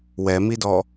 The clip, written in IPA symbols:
w ɛ m i d ɔ

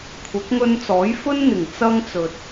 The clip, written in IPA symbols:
kʷʰ ɐ˨˥ k̚ ŋ ɵ˧ n t͡s ɔː˨˥ j f ɵ˥ n n̪ ɪ˨˩ ŋ t͡s ɐ˥ ŋ t͡s ɵ˨ t̚

